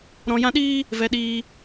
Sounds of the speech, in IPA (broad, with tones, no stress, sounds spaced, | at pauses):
ɾ ɔ̃˨ j ã˧ ɗ iː˦ | v ɛ˨ ɗ iː˧